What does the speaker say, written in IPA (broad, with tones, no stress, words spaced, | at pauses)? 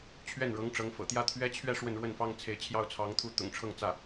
t͡ɕʰɥɛ˥˩nɻɤ˧˥ŋʈ͡ʂɤ˧˥ŋfɤ̰˨˩ t̪jä˥˩t̪ʰɥɛ˥t͡ɕʰɥɛ˥˧ ʂwə˥˧nɻwə˥˩nfɑ˥ŋ t͡sʰe˧˥ɪ̯t͡ɕʰjɑ˥˩ʊ̯t͡sʰɑ˧˥ŋt̪ʰu˧˥ t̪ʊ̰˨˩ŋʈ͡ʂʰɤ˥˧ŋt͡sä˥˩